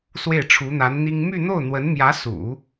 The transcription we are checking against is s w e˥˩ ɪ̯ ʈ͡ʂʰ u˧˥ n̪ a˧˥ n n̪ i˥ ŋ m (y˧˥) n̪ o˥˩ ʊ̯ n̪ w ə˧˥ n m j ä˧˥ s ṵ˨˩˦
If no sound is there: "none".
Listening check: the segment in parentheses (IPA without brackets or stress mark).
y˥˧